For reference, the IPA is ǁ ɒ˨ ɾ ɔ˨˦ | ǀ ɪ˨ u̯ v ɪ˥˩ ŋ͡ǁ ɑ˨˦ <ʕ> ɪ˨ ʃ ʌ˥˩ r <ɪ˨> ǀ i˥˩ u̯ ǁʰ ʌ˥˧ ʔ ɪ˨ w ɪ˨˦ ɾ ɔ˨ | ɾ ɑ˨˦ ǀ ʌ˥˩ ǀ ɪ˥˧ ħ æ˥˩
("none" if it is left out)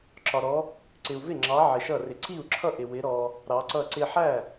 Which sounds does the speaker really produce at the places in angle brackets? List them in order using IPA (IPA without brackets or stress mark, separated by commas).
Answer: ʕ, ɪ˨